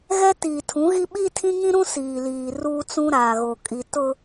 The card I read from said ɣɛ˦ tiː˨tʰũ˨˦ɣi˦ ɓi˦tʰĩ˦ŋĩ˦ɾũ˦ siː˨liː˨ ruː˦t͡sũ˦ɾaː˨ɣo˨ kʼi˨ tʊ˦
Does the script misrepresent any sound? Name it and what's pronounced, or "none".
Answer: none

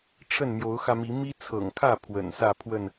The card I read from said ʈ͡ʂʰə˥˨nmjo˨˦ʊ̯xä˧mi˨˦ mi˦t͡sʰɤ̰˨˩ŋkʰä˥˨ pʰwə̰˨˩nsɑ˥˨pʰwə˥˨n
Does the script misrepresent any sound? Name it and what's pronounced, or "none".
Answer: ɑ˥˨ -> ä˥˨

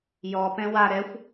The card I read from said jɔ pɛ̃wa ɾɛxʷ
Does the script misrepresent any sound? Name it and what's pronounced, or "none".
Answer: none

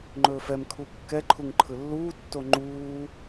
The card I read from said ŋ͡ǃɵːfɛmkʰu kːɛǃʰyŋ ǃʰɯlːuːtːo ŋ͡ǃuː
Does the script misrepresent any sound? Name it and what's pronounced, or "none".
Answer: y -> u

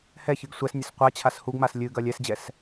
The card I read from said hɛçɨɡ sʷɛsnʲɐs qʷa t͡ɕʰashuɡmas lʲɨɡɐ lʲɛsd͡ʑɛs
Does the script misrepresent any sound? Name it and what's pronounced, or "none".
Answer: none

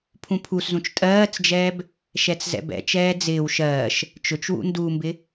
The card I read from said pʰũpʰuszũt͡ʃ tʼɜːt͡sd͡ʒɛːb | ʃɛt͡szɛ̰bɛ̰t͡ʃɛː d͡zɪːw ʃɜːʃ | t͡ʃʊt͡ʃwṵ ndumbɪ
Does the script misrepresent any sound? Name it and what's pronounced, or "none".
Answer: none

